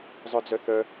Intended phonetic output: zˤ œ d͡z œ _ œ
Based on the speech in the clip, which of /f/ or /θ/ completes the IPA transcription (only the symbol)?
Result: θ